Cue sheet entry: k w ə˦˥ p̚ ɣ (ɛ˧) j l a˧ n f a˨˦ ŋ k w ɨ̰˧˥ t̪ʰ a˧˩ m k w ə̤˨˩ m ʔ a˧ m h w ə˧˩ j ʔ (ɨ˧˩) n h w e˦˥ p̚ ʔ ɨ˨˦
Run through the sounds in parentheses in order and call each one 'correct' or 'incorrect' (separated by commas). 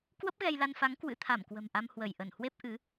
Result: correct, incorrect